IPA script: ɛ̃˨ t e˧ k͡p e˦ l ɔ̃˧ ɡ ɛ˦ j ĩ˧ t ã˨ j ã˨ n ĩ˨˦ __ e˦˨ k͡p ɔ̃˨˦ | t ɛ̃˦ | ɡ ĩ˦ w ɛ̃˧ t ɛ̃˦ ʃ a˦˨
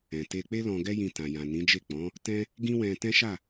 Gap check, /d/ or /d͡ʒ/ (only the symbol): d͡ʒ